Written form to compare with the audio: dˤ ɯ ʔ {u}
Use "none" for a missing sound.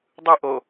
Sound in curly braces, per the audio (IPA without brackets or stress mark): o